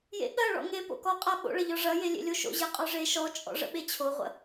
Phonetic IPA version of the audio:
jḛɠɐ ɭɔ̰ŋe po̰kɔqʼa ɓo̰ɭɐʎɔ ʐɐje lʲḛlʲoʃo̰ ʑeqʼɔʐe ʃɔt͡ʃʼɔ̰ ʐə̰ɓet͡ɕʰoʁʷə̰

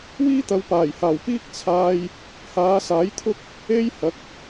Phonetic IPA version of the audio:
wiː˥t̪ɐ˨˧wpaː˨˩jhaː˨˩w piː˥k̚t͡sʰaː˧j | haː˨˧saː˨˥jt̪ʰʊ˥k̚ | e˥j hɐ˨˥k̚

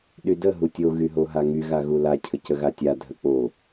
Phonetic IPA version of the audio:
ɗydə ɦutʲo ɣyɦoɦaŋy ɣaɣula cʰəcəɣatʲa dʱək͡po

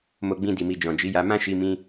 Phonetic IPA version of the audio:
mo˧ɡ͡bĩ˧di˨mi˨ d͡ʒɔ̃˨d͡ʒi˨˦ja˧ mã˦ʃi˧ mĩ˧

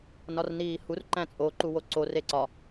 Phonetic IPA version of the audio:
nɒrniːhur ǃæ̃t͡sʼo ǃuwoǀo reǀɒ

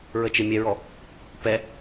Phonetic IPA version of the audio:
ɹət͡ʃɪ mʲɛɹɔ | pɛ

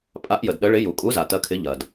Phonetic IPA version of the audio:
pʼa˨˥ʔjə˩d ɗə˨˥ ɭɪ˨˥ ju˩kʼu˨˥za˩ tɐ˨˥kʰɪ˨˥ʎɐ˩d

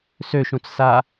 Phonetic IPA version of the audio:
søʃũt͡ssa

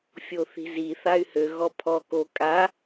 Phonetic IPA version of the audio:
fʲoθi̤zi θay̯hø ɣɔpʰɔ ko kʼa

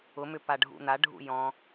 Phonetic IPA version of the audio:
ʊmʏ paɖʱṵn̪aɖʱṵ jɔ̃

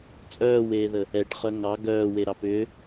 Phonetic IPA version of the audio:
t͡sʼœːweːðə | ɛʈχœ ŋɑ ɡœːweɾɑp ʏ

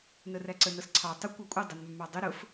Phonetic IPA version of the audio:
nəræǀə nʌsǀʰɑ tˤə kʷɑkʷʼʌ dˤənmːɑ dˤɪ ɾʊf

